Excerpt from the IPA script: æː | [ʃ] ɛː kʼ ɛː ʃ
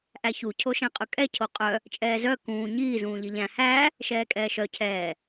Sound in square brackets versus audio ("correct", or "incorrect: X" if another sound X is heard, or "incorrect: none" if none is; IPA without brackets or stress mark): correct